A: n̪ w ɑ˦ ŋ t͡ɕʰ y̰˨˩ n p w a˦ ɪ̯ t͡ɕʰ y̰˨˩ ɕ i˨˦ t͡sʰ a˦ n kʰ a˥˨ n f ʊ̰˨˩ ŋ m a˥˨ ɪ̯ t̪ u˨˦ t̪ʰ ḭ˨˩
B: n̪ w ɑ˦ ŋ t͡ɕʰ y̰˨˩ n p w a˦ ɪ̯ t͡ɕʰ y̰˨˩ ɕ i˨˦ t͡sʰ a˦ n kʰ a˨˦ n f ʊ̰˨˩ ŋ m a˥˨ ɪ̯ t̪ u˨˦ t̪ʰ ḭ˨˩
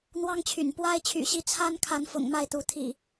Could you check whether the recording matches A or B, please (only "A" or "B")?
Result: B